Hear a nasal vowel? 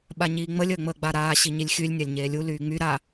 no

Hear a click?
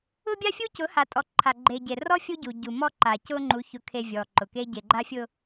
yes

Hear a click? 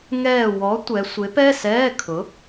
no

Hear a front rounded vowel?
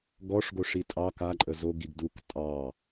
no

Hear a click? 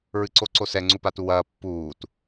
yes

